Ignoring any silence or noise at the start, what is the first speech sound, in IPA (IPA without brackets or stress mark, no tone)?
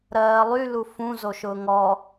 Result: ɾ